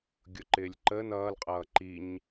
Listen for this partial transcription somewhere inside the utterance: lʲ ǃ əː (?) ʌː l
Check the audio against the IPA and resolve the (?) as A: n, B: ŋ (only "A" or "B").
A